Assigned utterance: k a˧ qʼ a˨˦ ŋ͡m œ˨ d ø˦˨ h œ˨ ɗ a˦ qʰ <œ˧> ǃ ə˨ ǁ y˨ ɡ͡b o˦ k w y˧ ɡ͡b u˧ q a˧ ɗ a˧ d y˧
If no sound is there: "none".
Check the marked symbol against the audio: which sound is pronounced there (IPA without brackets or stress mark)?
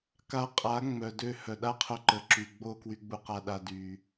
œ˧